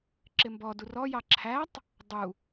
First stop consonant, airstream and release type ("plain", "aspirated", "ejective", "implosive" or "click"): click